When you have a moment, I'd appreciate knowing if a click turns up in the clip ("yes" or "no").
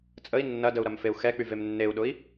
no